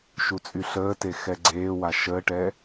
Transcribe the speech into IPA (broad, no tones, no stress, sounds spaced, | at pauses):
ʃ u t͡sʼ y ɬ əː t e x ɛ ɡ͡ǀ eː w a ʃ əː ʈ ɛː